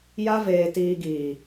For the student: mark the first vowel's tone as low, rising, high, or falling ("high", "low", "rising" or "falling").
high